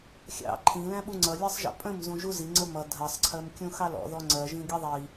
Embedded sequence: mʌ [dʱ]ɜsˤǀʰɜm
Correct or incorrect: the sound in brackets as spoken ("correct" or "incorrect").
correct